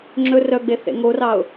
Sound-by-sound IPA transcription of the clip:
ŋ͡ǁ ɵ r œ ɡ͡b e θ ḛ ŋ o r ɑ ʊ̯

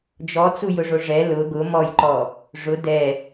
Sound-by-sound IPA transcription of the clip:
d͡ʒ ɔ t͡s u j ʊ ʐ o ʐ ɛ l ʊ ɡ ʊ m ɔ j ǃ ɔ | ʐ ʊ d ɛ

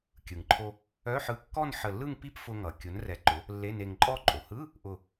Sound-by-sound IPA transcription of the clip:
kʲ ɯ˩ ŋ ǃʰ o˧ | œ˧˥˧ ħ ɯ˧ kː ɔ˥˧ n ħ ə˧˩ lː ɯ˥˧ ŋ p i˥˧ p f ʊ˧ ŋ ʌ˩ kʲ ʊ˩˥ n r ɛ˩˥ ǃ ʊ˩˥ | lː e˧˥˧ n e˧ ŋ ǃʼ ɔ˥˧ ǃʼ o˩ h ɯ˧˥˧ | ʔ ʊ˧˩

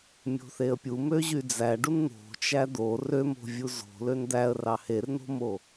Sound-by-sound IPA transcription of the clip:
mʲ o̤ θ e ə̯ pʲ u m ø ʑ y d͡z æ ɖ u n n̪ o̤ t͡ʃ æ d̪ o r ø m o̤ vʲ u z o̤ l ø n d̪ æ ə̯ r ɑ h e r n o̤ m o

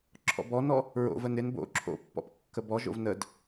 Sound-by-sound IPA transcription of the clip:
ǁʰ ɔ̰ b ɔ n ɔ | ɹ o̰ v ə n ɪ n b o̰ ǁʰ o̰ pː ɔ̰ p kː ə b ɔ ʒ o̰ v n ə d

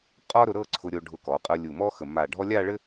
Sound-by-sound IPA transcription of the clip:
qʼ ɒ˥ ɾ ʊ˧ ɾ ɤ˥˧ ǀʰ ʊ˧ ɾʲ o˧ ɖʱ ʊ˧ k ɔ˩˧ qʼ ɤ˧ lʲ u˧˩ m ɔ˥ x ə˧˩ m a˧˩ ɖʱ ɔ˥ lʲ a˥˧ ɭ ɘ˥

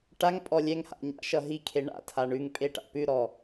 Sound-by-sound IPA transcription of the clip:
ʈ a ŋ pʼ ɔ lʲ ɛ ŋ h a̰ ɲ a̰ ʃ ʌ ɦ i kʰ e ɳ a̰ tʰ a ɳ ʉ ŋ pʼ e ʈ a̰ p ʉ ɾ ɔ

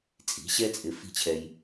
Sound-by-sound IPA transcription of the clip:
t͡sʼ i̤˩˥ ɕ ɛ˥ t͡sʼ ɪ˧ f i̤˥˩ t͡ɕʰ ɛ˧ j

